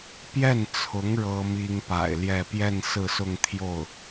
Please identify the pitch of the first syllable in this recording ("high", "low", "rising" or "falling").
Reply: falling